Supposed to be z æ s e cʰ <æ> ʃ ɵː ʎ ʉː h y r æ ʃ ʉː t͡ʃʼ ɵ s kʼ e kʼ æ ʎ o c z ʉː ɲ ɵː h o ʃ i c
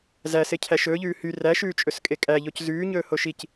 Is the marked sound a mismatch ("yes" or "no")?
no